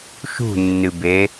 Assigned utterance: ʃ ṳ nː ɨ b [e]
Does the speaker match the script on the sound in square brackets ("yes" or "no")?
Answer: yes